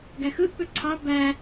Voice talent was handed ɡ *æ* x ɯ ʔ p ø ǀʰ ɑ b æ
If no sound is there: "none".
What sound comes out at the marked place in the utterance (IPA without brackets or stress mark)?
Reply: æ